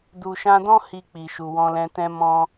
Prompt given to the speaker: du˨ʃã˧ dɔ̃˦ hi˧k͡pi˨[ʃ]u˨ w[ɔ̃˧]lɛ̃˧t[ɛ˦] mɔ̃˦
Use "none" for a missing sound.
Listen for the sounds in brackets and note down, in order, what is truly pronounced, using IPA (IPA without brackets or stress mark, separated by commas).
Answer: ʃ, ɔ̃˧, ɛ̃˦